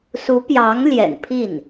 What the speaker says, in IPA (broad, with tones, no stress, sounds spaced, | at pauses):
s u˧˥ p j ɑ˧˥ ŋ l j ɛ̰˨˩ n pʰ i˥˩ n